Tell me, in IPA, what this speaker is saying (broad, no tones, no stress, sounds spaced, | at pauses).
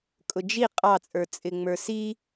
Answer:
kʼ ʊ d͡ʒ i qʼ ɑ t͡sʼ ə˞ t͡sʼ ɪ ŋ͡m ə˞ s i